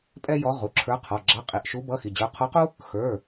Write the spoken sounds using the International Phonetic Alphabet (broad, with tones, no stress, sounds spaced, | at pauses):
pʼ ɛ˥ j ɔ˧˥ ʁ u˩˧˩ ǁʰ ə˞˧˥ qʰ ɔ˩˧˩ ɡ͡ǁ ɑ˧˥˧ qʼ i˩˧˩ ʔ ʃ u˧˥ b ʌ˧˥˧ x i˩˧˩ d͡ʑ ə˞˧˥ qʰ ɔ˧˥ q u˥ | x ə˞˩˧˩